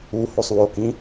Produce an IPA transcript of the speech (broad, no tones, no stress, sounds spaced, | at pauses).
u h o sˤ w o k ĩ